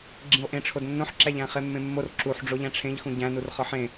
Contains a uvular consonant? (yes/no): yes